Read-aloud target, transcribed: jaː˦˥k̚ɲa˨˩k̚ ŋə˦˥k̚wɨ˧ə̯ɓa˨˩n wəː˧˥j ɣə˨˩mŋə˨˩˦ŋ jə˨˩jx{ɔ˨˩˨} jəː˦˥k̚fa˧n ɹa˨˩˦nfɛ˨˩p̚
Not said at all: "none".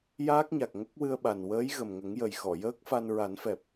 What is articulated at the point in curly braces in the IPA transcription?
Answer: ɔ˨˩˨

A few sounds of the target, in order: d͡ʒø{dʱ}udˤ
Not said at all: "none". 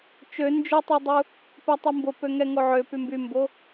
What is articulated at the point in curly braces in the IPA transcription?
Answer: tˤ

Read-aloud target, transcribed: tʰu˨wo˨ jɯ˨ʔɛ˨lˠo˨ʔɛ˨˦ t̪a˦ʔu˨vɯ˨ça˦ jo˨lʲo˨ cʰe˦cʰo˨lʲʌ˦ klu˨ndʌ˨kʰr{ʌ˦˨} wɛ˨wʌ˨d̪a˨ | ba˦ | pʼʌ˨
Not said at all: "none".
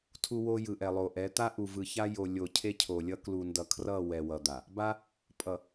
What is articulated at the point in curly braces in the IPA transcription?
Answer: ʌ˦˨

